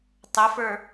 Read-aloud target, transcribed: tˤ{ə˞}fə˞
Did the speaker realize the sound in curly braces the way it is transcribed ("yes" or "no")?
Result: no